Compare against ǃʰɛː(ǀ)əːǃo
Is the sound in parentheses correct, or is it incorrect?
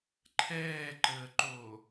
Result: incorrect